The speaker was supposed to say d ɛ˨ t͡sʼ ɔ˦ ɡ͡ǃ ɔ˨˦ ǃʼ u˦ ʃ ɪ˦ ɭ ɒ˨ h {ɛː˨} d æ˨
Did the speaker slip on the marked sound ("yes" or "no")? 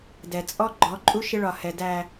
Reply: yes